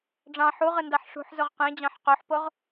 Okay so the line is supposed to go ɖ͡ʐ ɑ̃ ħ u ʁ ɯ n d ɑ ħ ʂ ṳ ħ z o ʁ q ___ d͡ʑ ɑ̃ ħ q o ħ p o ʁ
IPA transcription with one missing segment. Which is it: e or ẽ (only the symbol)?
ẽ